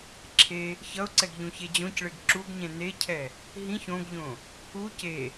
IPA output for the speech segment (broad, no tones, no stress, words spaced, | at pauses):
ǁʰe | çʌʊ̯ǀɛɡ ʎũçed͡ʑõcɭeɡ ǁuɡɲɛ̃ necʰɛ | ɦĩç õɡʎõ | u ce